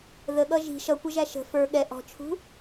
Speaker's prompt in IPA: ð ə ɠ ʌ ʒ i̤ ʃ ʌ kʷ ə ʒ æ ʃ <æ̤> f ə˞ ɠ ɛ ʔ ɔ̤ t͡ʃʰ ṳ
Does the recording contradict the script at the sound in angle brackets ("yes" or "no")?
yes